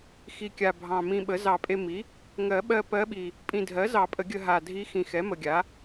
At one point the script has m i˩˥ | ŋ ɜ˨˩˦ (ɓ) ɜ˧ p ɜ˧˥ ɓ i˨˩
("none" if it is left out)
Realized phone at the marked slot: ɓ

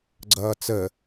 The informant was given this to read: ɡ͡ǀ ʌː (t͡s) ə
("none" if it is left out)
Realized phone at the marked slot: t͡s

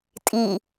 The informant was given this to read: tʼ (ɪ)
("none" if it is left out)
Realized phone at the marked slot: i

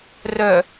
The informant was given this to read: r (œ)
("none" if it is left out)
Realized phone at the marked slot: œ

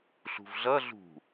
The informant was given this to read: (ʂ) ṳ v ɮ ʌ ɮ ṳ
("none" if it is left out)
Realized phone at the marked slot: ɬ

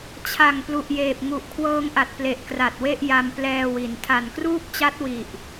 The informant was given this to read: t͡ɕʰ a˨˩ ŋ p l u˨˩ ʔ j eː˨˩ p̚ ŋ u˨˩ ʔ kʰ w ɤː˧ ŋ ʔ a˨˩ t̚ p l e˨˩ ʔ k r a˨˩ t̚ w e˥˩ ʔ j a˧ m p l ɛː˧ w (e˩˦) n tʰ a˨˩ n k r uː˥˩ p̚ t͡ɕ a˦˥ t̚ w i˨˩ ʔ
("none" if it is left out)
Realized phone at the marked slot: i˩˦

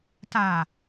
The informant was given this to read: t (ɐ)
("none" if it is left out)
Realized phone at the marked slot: a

